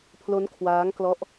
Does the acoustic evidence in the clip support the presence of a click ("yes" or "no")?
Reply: no